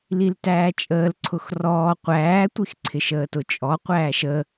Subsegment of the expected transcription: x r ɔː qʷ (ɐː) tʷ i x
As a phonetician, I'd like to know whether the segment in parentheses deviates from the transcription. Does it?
yes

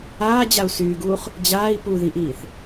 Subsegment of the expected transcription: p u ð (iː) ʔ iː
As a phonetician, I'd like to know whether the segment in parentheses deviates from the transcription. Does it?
yes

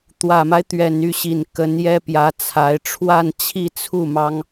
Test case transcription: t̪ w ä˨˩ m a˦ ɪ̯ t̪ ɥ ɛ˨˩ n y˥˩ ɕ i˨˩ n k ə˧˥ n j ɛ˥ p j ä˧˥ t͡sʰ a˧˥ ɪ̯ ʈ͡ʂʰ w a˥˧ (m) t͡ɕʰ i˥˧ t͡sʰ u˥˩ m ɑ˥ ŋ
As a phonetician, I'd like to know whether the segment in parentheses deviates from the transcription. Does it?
yes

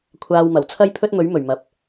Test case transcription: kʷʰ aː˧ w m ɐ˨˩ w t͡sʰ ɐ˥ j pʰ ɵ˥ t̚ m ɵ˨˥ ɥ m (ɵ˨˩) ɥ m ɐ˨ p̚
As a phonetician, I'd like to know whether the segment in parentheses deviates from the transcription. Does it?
no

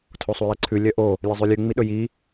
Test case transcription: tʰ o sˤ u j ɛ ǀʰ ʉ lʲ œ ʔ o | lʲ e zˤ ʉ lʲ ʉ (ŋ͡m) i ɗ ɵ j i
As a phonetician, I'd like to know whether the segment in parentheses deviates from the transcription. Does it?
no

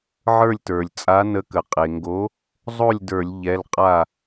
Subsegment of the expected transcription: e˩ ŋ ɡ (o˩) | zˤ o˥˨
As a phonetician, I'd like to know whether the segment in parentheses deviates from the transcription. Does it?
yes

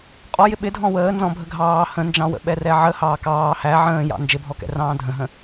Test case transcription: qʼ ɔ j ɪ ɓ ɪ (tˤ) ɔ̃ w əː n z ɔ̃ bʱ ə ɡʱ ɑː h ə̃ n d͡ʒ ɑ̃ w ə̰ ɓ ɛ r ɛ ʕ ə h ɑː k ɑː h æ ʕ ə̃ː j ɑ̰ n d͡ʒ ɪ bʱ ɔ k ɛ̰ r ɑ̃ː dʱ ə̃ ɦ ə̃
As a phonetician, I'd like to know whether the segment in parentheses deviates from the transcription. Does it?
yes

